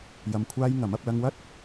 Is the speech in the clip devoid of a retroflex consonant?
yes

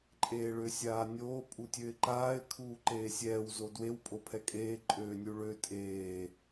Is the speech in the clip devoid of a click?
no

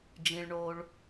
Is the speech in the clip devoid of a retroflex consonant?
no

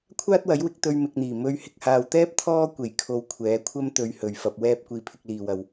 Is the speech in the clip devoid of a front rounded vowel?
yes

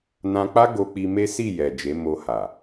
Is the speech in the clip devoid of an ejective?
yes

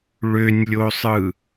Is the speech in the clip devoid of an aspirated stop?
yes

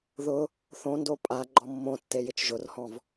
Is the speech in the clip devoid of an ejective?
no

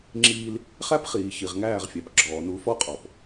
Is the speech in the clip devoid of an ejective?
no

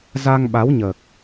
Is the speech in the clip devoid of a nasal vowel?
yes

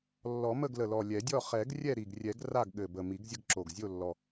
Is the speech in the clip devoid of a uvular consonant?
no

